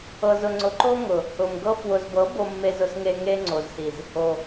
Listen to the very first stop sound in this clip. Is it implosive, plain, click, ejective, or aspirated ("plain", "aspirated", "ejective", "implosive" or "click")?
click